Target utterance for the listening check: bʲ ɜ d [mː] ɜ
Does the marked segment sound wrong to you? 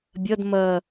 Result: yes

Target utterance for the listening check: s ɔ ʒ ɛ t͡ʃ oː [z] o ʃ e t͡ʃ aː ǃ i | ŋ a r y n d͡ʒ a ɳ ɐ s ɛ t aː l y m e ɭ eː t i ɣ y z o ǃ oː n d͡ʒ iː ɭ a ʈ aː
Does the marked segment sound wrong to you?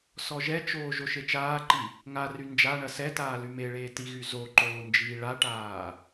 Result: yes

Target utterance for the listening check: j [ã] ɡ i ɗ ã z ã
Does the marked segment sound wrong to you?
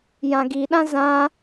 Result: no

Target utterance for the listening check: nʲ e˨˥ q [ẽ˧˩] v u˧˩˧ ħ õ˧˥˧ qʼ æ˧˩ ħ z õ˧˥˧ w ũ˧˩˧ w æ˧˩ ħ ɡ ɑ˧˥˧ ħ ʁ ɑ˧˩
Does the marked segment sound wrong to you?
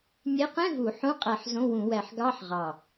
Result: yes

